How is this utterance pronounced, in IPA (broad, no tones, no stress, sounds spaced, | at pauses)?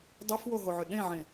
dˤ ʊ f w o ɦ o ʕ ʏ ɗ ẽ ʕ ẽ